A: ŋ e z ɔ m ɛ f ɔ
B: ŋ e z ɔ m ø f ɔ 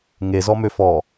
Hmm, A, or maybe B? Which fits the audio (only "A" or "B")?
B